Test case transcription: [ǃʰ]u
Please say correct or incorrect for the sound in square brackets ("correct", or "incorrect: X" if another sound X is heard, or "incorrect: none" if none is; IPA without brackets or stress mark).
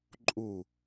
incorrect: ǃʼ